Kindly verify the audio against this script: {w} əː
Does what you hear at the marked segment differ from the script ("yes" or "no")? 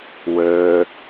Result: no